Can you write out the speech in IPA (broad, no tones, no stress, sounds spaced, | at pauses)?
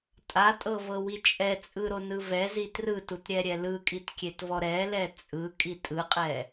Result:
tʼ a tʼ ɤ v ɤ w i t͡ʃʼ ɛ t͡sʼ ɯ ɾ o n ɯ v ɛ z i t r ɯ t u t ɾʲ ɛ ɾʲ ɛ l ɯ kʼ i t kʲ e t v ɔ ɾ ɛ l ɛ t͡sʼ ɯ kʼ i tʼ ɯ qʼ ɛ